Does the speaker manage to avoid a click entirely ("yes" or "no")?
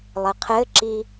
no